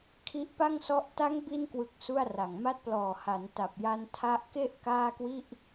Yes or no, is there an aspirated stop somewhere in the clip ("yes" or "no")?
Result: yes